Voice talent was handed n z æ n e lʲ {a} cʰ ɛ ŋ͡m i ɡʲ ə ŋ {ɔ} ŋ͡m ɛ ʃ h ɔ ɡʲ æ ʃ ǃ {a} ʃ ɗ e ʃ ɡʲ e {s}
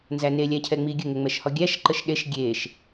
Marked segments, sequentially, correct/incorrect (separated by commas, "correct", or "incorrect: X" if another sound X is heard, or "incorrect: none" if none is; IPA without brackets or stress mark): incorrect: æ, incorrect: ə, incorrect: ə, incorrect: ʃ